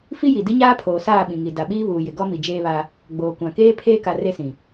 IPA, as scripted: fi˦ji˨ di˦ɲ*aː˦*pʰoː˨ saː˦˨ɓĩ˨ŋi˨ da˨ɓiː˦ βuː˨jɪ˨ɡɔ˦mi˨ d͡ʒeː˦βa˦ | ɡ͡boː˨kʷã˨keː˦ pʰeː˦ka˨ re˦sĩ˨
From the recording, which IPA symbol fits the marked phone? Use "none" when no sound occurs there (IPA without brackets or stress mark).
aː˦